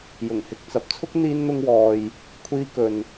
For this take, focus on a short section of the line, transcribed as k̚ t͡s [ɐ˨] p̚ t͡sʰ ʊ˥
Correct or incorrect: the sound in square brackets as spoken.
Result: correct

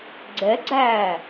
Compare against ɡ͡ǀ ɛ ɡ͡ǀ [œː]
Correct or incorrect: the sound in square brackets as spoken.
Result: incorrect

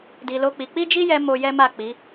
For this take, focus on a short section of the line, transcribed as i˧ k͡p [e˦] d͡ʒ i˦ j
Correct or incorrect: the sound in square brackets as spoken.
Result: incorrect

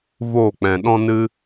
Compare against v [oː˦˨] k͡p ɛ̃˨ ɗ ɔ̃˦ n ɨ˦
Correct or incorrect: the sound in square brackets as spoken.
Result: correct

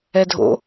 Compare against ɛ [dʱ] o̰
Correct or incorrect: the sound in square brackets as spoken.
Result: correct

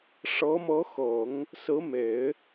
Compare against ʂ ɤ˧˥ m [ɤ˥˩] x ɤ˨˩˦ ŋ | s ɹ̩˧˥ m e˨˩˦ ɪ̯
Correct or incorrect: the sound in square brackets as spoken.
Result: incorrect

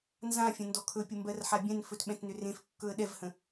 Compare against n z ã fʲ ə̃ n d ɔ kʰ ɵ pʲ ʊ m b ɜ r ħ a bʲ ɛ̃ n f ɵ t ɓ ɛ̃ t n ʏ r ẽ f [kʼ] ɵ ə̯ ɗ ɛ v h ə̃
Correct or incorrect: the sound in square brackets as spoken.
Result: incorrect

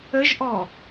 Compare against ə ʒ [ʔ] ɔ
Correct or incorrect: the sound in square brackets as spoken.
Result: correct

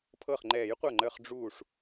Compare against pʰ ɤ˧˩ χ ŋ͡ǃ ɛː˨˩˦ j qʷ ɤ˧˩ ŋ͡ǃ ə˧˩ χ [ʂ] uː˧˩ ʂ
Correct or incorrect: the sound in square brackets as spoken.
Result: incorrect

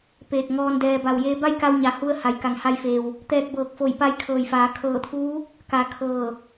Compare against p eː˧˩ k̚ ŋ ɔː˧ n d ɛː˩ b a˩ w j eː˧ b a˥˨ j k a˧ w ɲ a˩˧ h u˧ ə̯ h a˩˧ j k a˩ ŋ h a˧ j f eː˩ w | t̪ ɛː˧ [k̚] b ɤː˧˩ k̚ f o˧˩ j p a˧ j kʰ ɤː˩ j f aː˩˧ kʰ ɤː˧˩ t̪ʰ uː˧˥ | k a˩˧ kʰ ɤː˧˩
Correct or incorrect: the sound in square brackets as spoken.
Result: correct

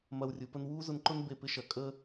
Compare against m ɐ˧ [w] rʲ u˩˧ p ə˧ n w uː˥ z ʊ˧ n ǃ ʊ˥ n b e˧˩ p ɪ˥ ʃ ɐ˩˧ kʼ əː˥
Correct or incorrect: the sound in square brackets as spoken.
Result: correct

